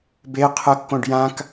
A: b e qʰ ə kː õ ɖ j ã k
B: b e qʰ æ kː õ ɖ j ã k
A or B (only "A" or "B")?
A